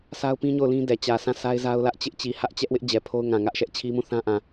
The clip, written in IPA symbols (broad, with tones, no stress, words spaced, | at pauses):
sa˦ʊ̯pĩ˦ ɲo˦˨ʊ̯lĩ˦ dɛ˨t͡ɕä˨sʰã˦˨ sa˦ɪ̯za˦ʊ̯lä˦ʔ t͡ɕɪ˦ʔt͡ɕi˨ hä˦ʔt͡ɕɛ˦ʔwɪ˦ʔ d͡ʑɛ˨pʰo˦ʊ̯ŋã˨ ŋä˦ʔʃɛ˦ʔt͡ɕʰi˦mũ˦˨ θã˦ʔã˨